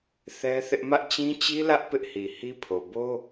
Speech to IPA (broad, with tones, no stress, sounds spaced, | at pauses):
θ ɛ˦ θ ɪ˦ ʔ m ä˦ ʔ t͡ɕ ĩ˦ t͡ɕ i˦ l ä˦ ʔ p ɪ˦ ʔ h i˨ h i˦ pʰ o˨ b o˦